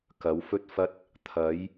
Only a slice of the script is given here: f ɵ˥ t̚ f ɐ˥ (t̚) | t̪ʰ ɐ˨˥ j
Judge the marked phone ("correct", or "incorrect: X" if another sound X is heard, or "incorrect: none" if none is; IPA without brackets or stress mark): correct